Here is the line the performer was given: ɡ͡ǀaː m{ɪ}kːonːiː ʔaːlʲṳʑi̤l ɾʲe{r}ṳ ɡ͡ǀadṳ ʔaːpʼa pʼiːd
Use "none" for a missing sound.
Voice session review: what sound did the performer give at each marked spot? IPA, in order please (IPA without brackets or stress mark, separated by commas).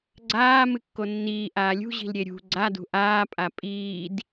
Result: ɨ, ɾʲ